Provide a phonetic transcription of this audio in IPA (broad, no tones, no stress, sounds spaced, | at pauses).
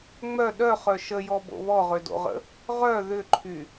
ŋ͡m œ ɗ œ χ œ ʃ ə j ɔ b o̰ β ɔ ʁ ø d o̰ ʁ ə̰ | ʁ œ ð ʏ ǃʰ y